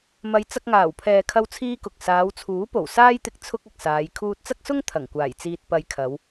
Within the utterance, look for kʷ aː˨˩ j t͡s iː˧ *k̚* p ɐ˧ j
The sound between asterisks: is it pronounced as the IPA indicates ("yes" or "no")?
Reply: no